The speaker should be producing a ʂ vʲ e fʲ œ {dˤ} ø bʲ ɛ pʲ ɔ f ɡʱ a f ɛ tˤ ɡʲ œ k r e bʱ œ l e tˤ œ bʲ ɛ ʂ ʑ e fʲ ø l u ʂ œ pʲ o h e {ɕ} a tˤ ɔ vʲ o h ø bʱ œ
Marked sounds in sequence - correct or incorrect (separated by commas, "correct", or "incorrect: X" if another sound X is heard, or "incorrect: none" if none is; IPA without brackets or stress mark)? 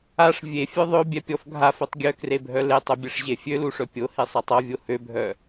incorrect: ðˤ, incorrect: sˤ